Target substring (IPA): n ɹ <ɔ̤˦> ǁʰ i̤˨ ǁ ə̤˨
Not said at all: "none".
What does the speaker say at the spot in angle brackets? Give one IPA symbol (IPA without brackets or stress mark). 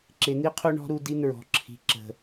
ɔ̤˨